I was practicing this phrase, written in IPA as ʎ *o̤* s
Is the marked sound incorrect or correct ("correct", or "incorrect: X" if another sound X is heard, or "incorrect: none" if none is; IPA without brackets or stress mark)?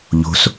correct